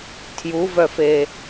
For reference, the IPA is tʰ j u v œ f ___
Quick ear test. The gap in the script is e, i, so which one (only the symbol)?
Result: e